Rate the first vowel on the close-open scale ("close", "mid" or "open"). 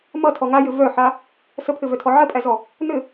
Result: mid